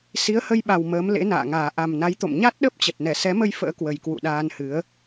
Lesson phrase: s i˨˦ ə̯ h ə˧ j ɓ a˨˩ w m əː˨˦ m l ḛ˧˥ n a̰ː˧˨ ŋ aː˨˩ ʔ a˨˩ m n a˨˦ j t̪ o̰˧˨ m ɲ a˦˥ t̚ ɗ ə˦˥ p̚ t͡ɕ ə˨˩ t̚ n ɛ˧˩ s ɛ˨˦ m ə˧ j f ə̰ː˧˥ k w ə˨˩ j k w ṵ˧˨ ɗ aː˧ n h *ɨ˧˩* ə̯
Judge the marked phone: incorrect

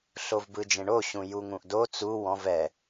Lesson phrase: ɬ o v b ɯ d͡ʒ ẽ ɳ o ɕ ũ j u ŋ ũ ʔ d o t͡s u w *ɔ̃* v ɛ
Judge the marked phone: correct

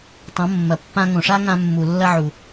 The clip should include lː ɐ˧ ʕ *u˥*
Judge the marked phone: incorrect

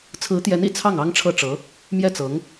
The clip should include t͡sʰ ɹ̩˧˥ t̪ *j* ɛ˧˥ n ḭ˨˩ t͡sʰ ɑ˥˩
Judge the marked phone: correct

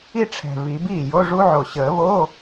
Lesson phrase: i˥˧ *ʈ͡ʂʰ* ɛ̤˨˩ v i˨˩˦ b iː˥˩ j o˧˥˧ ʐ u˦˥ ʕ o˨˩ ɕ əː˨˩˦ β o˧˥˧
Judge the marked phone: correct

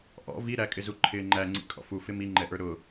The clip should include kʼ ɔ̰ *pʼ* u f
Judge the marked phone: incorrect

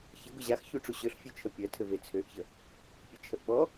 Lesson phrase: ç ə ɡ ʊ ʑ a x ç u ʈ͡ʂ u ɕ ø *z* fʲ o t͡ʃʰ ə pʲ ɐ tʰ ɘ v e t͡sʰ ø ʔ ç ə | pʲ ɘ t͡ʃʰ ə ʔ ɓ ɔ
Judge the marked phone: incorrect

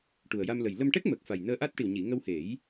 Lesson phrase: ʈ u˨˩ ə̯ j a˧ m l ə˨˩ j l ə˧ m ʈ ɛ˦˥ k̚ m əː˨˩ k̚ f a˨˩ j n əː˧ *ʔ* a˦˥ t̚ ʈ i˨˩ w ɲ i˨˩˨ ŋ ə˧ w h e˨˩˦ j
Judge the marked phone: correct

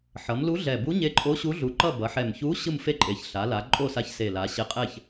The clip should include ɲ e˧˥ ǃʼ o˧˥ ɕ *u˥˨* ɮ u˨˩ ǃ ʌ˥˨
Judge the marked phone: incorrect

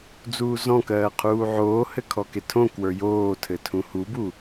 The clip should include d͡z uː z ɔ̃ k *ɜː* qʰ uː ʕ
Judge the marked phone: correct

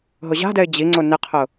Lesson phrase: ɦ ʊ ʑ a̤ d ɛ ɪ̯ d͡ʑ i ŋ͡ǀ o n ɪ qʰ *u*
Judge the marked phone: incorrect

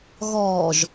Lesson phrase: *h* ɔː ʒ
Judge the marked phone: incorrect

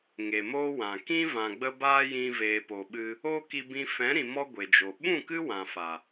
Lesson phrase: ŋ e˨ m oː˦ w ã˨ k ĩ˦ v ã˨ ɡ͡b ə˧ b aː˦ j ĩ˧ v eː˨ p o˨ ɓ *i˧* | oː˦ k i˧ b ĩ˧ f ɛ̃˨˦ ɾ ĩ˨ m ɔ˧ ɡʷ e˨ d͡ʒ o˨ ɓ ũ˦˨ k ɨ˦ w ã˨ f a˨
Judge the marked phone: incorrect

